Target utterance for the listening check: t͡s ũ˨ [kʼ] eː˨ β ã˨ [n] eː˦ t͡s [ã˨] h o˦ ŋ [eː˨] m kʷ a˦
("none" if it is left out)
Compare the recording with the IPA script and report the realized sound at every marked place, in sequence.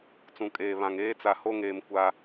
kʼ, ŋ, a˨, eː˨

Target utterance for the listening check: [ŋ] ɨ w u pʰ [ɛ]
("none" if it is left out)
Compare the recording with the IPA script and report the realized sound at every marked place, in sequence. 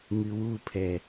ŋ, ɛ

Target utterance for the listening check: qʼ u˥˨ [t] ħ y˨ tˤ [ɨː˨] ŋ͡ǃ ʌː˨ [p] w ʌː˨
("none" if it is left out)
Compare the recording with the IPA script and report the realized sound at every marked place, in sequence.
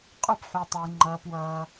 p, ɨː˨, p

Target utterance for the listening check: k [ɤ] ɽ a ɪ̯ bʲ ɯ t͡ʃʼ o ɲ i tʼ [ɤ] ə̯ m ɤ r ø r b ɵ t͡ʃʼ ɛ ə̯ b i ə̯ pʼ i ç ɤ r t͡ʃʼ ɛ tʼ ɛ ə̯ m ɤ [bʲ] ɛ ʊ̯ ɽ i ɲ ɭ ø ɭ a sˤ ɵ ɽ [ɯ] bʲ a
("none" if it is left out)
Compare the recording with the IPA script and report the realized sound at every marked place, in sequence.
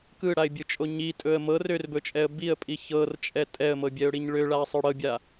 ɯ, ɵ, bʲ, ɤ

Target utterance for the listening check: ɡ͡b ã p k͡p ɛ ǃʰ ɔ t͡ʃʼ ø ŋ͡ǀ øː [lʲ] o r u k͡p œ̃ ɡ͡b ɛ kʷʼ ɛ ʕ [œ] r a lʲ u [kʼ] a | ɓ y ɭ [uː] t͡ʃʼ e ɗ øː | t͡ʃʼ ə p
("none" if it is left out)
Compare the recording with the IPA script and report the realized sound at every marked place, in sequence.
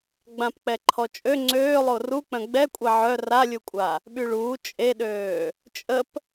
lˠ, œ, kʷʼ, uː

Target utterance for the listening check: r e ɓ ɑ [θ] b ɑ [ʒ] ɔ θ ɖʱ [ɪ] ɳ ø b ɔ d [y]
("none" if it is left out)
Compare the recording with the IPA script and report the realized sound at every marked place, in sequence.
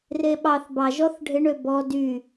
θ, ʒ, ɪ, y

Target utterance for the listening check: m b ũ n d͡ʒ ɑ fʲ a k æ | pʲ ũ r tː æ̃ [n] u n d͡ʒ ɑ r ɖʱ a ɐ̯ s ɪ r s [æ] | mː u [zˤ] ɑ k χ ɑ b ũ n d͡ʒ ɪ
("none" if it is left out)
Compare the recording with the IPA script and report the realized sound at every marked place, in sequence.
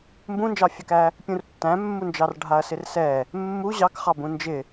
mː, ɛ, ʑ

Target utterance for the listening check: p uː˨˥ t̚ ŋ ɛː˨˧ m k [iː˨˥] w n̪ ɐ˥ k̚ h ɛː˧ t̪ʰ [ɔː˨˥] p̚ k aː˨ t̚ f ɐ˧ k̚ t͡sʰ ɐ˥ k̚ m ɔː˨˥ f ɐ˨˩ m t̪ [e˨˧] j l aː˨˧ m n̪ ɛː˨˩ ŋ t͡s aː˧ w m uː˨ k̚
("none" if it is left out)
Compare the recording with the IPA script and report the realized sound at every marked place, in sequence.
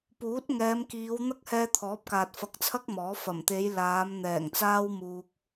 iː˨˧, ɔː˨˥, e˨˧

